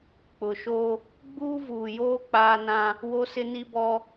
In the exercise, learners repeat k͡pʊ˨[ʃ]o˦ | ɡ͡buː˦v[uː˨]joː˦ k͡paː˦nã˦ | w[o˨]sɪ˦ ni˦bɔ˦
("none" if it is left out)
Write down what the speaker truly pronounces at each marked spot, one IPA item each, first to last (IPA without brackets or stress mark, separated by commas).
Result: ʃ, uː˨, o˦